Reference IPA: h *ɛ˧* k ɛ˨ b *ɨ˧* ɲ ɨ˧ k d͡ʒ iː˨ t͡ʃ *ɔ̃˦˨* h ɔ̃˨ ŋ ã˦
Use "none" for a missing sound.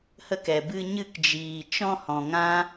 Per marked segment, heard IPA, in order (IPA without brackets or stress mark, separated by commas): ə˧, ɨ˧, ɔ̃˧